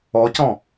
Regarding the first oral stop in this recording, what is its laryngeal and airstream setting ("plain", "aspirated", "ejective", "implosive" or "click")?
plain